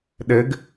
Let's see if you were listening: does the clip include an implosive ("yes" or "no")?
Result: yes